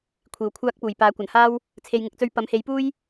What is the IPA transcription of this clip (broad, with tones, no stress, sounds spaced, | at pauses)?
kʷʰ iː˨ w kʷʰ aː˥ k̚ p uː˨˩ j p aː˨˥ kʷ ɐ˨˩ n h aː˥ w | t͡sʰ e˨ j ŋ ɪ˨˥ k̚ t͡s ɵ˧ ɥ p ɐ˨˥ m h e˨˥ j p uː˥ j